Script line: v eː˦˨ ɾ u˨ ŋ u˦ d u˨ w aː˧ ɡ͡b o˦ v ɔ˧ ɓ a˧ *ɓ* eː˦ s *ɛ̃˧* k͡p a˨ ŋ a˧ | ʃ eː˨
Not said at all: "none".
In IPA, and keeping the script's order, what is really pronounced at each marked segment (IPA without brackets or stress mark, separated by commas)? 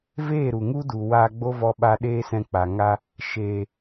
ɗ, ɛ̃˧